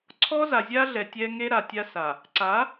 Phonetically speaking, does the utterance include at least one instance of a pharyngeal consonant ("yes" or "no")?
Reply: no